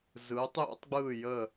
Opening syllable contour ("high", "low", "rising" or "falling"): rising